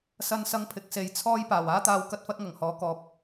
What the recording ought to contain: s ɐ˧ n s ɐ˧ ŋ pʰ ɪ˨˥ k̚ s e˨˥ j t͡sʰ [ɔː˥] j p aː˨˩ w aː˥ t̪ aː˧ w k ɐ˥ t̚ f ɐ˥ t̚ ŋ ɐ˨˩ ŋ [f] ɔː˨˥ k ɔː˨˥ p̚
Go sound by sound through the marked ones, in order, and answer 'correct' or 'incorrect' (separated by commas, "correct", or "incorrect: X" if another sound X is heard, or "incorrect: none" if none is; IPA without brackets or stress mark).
correct, incorrect: h